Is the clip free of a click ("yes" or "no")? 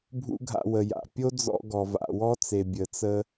yes